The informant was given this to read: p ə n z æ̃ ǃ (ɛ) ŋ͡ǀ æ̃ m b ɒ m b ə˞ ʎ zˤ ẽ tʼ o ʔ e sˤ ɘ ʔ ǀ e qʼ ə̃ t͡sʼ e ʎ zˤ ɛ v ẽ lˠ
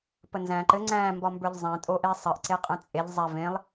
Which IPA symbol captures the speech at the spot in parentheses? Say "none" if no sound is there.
ɘ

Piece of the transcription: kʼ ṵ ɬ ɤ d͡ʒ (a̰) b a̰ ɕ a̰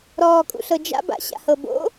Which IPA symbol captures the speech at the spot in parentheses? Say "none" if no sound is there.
a̰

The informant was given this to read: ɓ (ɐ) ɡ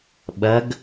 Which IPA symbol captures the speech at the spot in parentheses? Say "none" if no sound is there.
ɐ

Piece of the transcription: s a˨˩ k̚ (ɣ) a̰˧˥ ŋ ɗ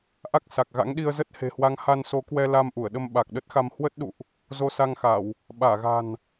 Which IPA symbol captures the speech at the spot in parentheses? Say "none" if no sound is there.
ɣ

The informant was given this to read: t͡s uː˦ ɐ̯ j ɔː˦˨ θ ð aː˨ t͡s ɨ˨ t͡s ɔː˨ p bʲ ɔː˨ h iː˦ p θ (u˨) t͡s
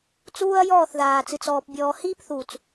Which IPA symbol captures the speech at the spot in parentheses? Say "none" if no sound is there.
u˨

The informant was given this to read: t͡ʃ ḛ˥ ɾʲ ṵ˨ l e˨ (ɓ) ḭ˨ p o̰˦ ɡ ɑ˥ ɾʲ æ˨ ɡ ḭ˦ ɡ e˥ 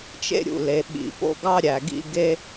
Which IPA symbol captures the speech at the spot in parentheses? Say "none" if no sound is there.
ɓ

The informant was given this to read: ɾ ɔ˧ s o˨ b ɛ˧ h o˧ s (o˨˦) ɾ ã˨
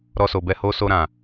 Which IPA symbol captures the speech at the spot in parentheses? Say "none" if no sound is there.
o˧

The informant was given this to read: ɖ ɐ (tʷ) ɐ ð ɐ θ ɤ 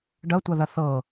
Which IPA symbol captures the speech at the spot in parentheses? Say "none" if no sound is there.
tʷ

